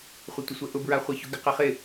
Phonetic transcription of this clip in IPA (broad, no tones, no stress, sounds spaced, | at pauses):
χʷ ɪ tʷ ɪ sʷ ɛ ʔ ʊ b ɹ a χʷ ɛ ç ʊ ɡ ɪ q ɛ χ ɪ